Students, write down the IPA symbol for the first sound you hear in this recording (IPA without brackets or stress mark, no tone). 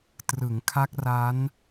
t